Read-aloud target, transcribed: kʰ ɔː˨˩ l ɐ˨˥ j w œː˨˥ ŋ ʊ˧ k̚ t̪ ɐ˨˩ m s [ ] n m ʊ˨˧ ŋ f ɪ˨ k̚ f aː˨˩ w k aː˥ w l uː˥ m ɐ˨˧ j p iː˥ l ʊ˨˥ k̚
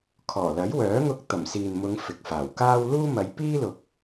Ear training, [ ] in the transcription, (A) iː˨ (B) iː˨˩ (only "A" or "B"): A